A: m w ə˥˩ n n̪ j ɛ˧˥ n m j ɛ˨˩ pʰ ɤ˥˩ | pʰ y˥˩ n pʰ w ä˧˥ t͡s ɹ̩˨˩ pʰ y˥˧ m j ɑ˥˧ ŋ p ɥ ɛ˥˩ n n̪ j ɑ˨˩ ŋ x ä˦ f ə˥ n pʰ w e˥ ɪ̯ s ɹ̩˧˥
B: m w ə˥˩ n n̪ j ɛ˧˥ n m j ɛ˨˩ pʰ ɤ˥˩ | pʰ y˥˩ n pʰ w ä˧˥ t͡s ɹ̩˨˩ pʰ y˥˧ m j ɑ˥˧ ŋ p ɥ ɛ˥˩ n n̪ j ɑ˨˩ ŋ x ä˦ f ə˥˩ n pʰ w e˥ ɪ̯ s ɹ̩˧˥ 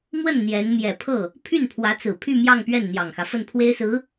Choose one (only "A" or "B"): B